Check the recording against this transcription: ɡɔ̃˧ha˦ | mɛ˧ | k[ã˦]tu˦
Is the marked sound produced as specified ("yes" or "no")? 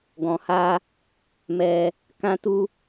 yes